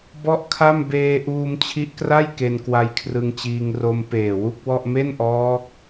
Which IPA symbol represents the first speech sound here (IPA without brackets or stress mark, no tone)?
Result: b